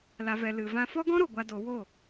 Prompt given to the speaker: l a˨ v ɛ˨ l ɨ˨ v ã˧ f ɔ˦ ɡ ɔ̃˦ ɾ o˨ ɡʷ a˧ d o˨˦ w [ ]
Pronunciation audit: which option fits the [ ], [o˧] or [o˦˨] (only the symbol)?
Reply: o˦˨